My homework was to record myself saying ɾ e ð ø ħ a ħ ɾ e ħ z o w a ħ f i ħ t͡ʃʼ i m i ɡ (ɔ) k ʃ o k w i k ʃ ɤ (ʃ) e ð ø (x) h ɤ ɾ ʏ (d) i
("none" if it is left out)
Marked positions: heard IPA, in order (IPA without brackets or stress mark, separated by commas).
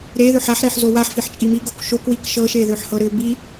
o, ʃ, ħ, b